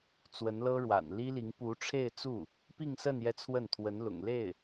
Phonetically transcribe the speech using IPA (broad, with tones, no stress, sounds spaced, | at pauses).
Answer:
t͡s w ə˧˥ n l ɤ˥ ɻ w a̰˨˩ n l i˥ l i˧˥ ŋ p u˧˥ ʈ͡ʂʰ e˥˧ ɪ̯ t͡s u˥˩ | p i˥˧ ŋ s ə˥˧ n j ɛ˥˧ t͡sʰ w ə˥˩ n t̪ʰ w ə˧˥ n l ʊ̰˨˩ ŋ l e˥˩ ɪ̯